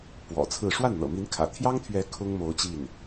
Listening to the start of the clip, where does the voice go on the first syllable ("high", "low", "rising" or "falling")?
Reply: low